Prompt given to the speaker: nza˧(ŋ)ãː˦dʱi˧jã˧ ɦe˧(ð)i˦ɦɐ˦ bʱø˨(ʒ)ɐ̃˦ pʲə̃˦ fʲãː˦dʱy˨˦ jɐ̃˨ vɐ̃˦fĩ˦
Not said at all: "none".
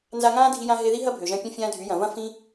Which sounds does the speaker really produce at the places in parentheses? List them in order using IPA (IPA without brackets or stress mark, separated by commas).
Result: ŋ, ð, ʒ